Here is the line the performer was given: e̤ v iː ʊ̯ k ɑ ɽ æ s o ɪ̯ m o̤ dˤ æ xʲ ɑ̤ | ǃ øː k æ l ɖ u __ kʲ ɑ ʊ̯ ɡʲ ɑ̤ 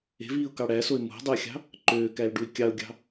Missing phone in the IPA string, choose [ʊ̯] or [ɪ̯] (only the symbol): ɪ̯